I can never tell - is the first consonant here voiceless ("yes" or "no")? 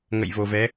no